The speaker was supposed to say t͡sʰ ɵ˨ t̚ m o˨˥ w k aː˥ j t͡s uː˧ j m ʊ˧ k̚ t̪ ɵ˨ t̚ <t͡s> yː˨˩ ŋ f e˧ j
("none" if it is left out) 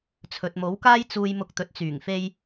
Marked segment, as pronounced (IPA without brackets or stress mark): t͡s